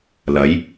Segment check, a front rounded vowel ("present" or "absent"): absent